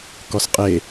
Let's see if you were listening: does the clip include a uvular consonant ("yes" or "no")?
yes